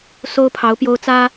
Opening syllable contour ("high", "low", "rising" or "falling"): high